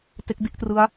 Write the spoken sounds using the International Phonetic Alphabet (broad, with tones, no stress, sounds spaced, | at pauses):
t e˦˥ k̚ d i˥˩ ʔ t r ɯ˦˥ a̯